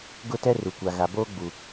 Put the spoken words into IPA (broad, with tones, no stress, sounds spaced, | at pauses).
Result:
ɡ ʊ˦˨ t ɛ˦ r u˨ kʷ a˨ ɣ a˨ b oː˦ ɡ͡b u˨